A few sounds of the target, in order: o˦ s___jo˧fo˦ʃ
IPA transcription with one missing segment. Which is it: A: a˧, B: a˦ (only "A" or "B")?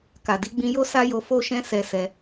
B